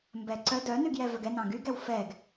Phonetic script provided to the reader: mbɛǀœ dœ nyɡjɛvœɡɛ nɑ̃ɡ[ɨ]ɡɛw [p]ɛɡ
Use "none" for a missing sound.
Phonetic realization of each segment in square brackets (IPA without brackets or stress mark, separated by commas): y, f